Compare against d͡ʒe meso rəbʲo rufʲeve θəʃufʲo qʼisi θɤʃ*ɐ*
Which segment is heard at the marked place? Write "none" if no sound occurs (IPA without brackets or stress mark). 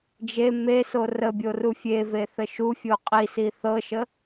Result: ə